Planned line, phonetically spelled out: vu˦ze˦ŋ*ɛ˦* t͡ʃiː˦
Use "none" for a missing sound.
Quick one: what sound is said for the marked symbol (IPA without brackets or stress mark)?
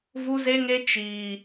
e˦